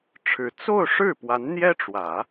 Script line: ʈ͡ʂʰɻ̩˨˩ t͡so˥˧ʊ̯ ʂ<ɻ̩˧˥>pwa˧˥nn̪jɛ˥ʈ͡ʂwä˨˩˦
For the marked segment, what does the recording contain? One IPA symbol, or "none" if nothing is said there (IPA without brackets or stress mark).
ɻ̩˥˩